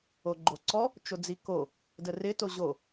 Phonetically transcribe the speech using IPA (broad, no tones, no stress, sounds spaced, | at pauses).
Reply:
o ɡ͡ǃ o ǀ ɔ | t͡ʃ o d͡z i k o | d ə r ɪ t o ʑ o